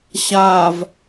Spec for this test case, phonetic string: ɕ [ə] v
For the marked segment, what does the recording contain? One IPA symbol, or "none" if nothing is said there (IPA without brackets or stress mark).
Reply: a